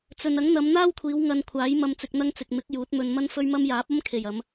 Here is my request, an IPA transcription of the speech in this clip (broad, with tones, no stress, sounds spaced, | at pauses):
t͡s ɵ˨ n ɐ˨˥ ŋ n̪ ɐ˨˧ m n̪ aː˥ w kʷʰ iː˨˧ w ŋ ɐ˧ n kʷʰ aː˨˥ j m ɐ˨ m t͡s ɪ˨ k̚ n̪ ɐ˧ ŋ t͡s ɪ˨ k̚ m ɪ˨˥ k̚ j uː˨˥ t̚ m ɵ˧ n m ɐ˥ n f ɵ˥ ɥ m ɐ˥ m j aː˨˥ p̚ ɐ˥ m kʰ e˨˩ j ɐ˨˧ m